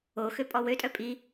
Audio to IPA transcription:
o x ø pʼ ɔ w ø tʼ œ pʼ i

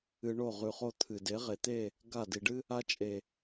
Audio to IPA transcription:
ɨ˧ ɳ o˦˨ ʁ ʉ˧ χ o˦ t̪ʰ ɨ˨ d e˨˦ ʁ e˨ t̪ e˦˨ | ɡ a˦˨ d i˨ ɖ ɨ˦ | a˦ t͡ʃʼ e˨

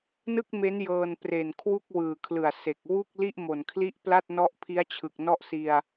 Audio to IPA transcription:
n ɯ˥˩ k̚ m e˦˥ n j ɤː˧ n p r e˨˩ n kʰ w u˥˩ k̚ w ɯː˨˩ kʰ l ɯ˨˩ a̯ s e˨˩ k̚ w u˥˩ k̚ l i˥˩ ʔ m o˨˩ n kʰ l i˥˩ ʔ p l a˥˩ t̚ n ɔ˦˥ ʔ pʰ i˦˥ a̯ t͡ɕʰ ɯ˨˩ k̚ n ɔ˥˩ ʔ s i˧ a̯

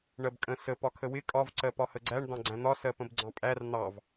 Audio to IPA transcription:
ɳ ɜ b kʼ ə̃ s ə p ɒ kʰ ə w ɪ kʼ ɒ v ǀ ɜ p ɒ h ə ɡ͡ǀ æ ɳ d̪ ɑ̃ ɡ͡ǀ æ̃ n̪ ɒ s ɜ p ə̃ b ɡ͡ǀ ɑ̃ pʼ æ r n̪ ɑ v

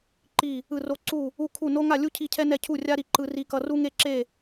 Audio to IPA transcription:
ǃ i˥˧ | ɯ˥˧ r o˥ ǀ u˥˧ | u˥˧ kʰ u˥˧ n o˥ ŋ a˥˧ lʲ u˥ cʰ i˥˧ cʰ ɛ˥ n ɛ˥˧ cʰ u˥˧ rʲ a˥ ɾ i˥˧ ǃ ɯ˥ r i˥ k ʌ˥ r u˥ ŋ e˥˧ ǁ e˥˧

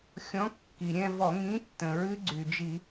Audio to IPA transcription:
xʲ ɔ̃˨˥ kː i˩ ɾʲ ɛ̃˥˧ v ɔ˧˩˧ ŋ ĩ˨˥ tː ə̃˩ ɹ ɨ˦˥ ɡ͡ǀ y˩ d͡ʒ i˧˩˧

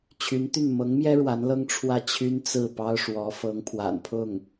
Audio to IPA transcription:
t͡ɕʰ y˧˥ n t̪ y˥˩ n m ɤ˧˥ ŋ m j ɛ˥ ɻ w a˧˥ n l ɤ˥ ŋ ʈ͡ʂʰ w ä˥˩ t͡ɕʰ y˥ n t͡s ɹ̩˥˩ p ɑ˥ ʊ̯ ʂ w ɔ˧˥ f ɤ˧˥ ŋ pʰ w a̰˨˩ n pʰ ʊ˥˩ ŋ

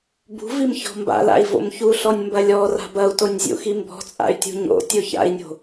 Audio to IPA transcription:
b ṳ v i m ç ɔ̤ m b a̰ l a̰ i̯ v o̰ m ç u ɬ ɔ nʲ m b ɐ lʲ ɔ r a̤ b ɐ u̯ t o nʲ zʲ ṵ x i m b ɔ̤ t͡sʼ a̰ y̯ tʲ ṳ ɲ o̰ tʲ o ç a̰ i̯ nʲ o̤

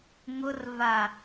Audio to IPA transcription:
ŋ ʊ r v a

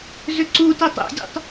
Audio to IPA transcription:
z ʏ ǀ u t ɛ tˤ ɛ̰ dʲ ṵ tˤ

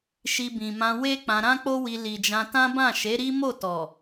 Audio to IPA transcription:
ʃ i˧ b ĩ˨ m ã˧ w e˦ k͡p ã˧ ɾ ã˦ k͡p o˦ w i˧ l i˨ d͡ʒ ã˧ t ã˦ b ã˦˨ ʃ e˨˦ ɾ i˦ m o˦˨ t ɔ˨

